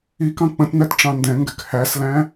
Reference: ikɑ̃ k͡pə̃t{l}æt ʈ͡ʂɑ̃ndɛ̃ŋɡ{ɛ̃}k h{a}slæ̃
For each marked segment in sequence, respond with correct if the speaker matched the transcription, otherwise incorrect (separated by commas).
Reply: incorrect, incorrect, incorrect